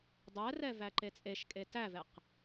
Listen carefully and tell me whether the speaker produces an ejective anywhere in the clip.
yes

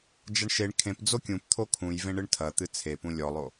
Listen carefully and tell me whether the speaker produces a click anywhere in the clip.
no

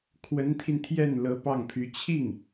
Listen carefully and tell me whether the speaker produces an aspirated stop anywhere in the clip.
yes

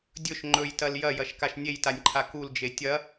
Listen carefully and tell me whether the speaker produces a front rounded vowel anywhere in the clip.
no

